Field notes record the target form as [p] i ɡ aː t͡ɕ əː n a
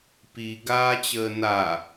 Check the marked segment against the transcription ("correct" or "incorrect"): correct